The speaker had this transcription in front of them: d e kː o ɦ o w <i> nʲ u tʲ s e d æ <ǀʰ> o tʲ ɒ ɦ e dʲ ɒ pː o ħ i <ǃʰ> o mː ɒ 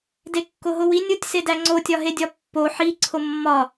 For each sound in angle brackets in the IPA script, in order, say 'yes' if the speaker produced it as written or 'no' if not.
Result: yes, no, no

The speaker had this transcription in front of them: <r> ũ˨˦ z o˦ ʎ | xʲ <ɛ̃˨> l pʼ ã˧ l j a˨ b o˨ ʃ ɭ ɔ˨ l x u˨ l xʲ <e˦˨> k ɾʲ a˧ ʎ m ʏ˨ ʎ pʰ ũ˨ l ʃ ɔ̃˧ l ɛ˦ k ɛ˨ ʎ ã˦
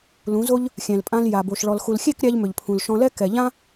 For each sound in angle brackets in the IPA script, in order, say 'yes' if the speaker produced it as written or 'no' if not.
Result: no, yes, yes

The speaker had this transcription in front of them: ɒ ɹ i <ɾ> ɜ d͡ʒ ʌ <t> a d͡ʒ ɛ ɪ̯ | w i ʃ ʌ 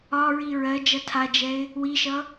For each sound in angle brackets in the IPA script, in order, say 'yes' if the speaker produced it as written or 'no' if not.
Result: no, no

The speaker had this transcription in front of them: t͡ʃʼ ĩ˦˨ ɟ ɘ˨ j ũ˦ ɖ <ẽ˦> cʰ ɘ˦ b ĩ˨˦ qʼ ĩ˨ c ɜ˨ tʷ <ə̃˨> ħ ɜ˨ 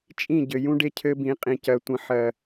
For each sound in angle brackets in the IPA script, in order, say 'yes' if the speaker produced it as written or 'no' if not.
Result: no, yes

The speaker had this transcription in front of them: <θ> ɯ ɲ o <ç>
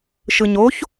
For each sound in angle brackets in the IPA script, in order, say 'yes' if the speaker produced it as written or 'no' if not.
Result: no, yes

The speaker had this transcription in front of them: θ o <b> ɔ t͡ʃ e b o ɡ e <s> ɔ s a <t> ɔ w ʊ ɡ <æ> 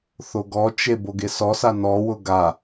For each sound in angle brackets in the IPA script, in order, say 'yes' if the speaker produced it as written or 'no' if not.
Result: no, yes, no, no

